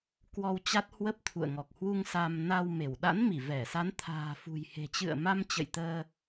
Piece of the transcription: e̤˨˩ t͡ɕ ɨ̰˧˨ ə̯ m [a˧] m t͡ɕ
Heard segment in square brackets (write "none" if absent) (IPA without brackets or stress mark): a˧